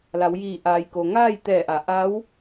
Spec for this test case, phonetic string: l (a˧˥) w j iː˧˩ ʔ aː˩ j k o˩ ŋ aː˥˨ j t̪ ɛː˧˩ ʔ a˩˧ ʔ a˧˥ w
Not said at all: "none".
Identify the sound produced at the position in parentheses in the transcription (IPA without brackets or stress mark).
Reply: a˩˧